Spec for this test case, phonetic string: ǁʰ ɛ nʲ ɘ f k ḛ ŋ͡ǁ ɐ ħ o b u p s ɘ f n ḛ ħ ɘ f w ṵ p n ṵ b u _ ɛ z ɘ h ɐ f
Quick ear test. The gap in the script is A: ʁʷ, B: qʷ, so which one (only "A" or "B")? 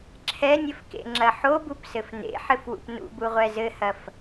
A